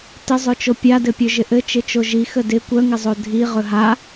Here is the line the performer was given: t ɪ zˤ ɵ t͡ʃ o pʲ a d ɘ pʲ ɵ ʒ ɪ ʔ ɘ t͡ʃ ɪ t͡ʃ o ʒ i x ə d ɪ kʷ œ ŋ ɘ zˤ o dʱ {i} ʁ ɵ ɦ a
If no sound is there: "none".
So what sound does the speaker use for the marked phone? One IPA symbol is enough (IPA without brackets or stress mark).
i